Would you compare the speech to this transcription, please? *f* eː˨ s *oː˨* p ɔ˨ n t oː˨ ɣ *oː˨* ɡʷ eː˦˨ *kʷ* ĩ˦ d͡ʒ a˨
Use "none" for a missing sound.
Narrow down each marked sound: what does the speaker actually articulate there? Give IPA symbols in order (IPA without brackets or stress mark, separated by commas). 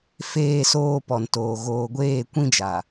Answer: f, oː˨, oː˨, kʷ